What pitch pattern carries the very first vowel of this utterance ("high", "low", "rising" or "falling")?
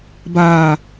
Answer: low